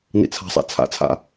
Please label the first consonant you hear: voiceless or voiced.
voiced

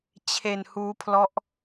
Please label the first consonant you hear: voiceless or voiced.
voiceless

